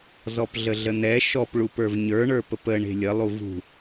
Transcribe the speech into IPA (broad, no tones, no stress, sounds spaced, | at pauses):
z ɔ p ɮ ə ɮ ə n̪ ɛ ʃ ɔ p ɭ u p ə˞ v ɲ ə˞ ɳ ə˞ p ə p ə ɳ e̤ lʲ ə lˠ u v ṳ